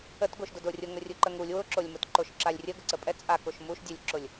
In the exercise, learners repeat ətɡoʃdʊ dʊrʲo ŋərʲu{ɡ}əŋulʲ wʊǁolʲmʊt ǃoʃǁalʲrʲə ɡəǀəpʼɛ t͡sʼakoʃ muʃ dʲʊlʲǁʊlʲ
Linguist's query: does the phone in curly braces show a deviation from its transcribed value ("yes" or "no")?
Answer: yes